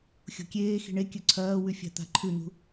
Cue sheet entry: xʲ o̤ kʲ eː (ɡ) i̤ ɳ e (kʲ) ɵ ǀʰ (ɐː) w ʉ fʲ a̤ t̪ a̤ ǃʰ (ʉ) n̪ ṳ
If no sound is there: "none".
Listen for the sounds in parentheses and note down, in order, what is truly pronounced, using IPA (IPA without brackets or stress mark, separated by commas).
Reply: x, kʲ, ɐː, ʉ